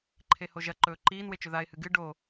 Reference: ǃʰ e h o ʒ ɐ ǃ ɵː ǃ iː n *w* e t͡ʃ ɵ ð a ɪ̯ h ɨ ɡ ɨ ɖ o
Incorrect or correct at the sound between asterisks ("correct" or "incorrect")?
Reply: correct